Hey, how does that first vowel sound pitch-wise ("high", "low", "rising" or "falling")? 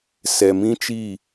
low